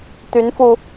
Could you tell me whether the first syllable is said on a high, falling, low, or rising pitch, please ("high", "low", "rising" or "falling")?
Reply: rising